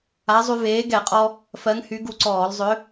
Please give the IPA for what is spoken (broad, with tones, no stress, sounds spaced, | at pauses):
a˨˥ zˤ y˧ v eː˨˥ ɡ ɛ˧˩˧ qʼ ɔ˧ | f ɜ˨˥ ŋ h y˨˥ ɡ u˧ ǀ ɔː˧˩˧ l zˤ ʏ˨˥